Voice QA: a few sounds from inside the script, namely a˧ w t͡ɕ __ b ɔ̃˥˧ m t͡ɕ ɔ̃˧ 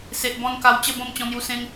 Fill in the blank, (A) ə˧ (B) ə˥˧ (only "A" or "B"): B